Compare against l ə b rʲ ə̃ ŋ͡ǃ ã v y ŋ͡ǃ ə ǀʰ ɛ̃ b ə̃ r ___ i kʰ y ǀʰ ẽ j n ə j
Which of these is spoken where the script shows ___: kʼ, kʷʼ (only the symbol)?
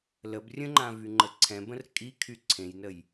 kʼ